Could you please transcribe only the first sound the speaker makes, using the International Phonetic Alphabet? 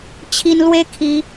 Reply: t͡ɕʰ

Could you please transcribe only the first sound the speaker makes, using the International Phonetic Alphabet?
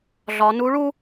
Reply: ɮ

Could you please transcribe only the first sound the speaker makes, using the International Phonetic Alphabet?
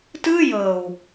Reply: t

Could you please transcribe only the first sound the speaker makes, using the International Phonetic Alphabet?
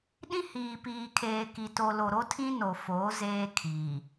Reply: ɗ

